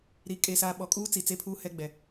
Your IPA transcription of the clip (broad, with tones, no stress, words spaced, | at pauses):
ɾi˨ kʼe˨saː˨ ɓɔ˨kʼuː˦ t͡si˨t͡se˦pʰuː˦hɛ˦ ɡ͡bɛ˨